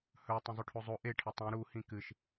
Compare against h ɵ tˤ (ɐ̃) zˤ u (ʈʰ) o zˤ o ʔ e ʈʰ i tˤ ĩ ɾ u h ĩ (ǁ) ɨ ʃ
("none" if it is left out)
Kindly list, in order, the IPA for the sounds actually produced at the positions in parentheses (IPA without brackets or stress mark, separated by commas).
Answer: ɐ̃, ʈʰ, k